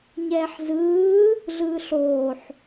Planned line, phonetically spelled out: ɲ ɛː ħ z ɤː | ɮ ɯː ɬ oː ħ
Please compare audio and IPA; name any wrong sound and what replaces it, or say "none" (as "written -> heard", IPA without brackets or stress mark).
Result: ɤː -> ɯː